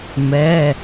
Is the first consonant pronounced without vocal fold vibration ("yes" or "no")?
no